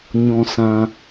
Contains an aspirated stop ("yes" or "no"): no